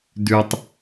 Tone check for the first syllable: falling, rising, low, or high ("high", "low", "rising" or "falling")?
high